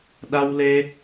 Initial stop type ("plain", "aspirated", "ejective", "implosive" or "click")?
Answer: implosive